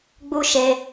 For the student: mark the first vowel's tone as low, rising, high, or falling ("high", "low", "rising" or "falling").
high